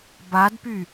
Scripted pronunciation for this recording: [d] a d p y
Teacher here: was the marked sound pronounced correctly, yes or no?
no